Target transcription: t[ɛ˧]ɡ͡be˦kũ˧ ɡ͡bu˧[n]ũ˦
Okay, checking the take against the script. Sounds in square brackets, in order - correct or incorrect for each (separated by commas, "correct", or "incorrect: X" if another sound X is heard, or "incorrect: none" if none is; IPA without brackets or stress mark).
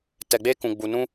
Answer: correct, correct